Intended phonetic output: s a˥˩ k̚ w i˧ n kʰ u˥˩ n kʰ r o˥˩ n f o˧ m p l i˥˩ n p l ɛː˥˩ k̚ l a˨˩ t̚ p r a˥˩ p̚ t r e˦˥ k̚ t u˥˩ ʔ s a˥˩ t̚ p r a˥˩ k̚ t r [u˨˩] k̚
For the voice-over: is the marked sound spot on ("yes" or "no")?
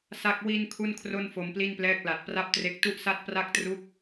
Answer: no